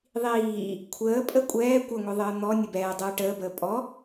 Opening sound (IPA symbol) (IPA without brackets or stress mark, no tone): ðˤ